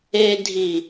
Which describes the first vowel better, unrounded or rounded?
unrounded